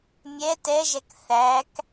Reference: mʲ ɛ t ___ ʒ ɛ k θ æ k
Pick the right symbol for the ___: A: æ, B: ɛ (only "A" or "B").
B